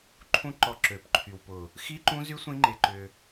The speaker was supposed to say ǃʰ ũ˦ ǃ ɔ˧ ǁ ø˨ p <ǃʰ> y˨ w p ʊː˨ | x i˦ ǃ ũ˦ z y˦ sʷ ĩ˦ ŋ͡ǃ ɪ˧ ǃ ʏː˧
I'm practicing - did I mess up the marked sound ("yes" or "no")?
no